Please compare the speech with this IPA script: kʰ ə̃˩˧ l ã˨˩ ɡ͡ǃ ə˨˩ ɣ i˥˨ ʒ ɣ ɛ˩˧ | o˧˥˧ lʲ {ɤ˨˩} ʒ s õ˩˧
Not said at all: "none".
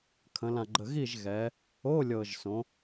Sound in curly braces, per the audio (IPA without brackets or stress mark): ɤ˨˩